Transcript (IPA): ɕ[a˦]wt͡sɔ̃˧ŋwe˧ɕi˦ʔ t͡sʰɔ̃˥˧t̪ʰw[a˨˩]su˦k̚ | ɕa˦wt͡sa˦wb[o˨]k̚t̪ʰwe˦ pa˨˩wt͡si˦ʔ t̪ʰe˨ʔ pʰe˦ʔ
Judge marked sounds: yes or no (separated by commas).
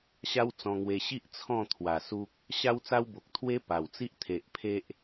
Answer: yes, yes, yes